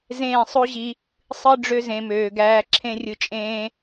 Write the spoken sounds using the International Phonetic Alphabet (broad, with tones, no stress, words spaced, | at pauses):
zẽː˦˨sˤo˦ʑi˧ | sˤɯ˦ ɖ͡ʐø˧zẽ˨møː˨ ɡæː˧ǁʰẽ˦rʲɯ˧t͡ʃʼẽː˦